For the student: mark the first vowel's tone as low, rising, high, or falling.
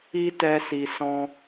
high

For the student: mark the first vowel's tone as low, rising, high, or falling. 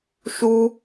high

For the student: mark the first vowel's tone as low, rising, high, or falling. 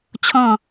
falling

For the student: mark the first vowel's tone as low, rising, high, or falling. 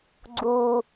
low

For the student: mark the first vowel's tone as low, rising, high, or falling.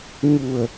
low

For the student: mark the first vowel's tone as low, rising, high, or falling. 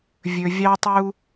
low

